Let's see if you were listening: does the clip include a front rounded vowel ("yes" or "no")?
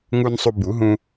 no